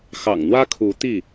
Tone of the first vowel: low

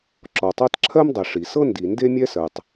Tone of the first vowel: low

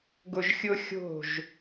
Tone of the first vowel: low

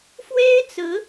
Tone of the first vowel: high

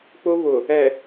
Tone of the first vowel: high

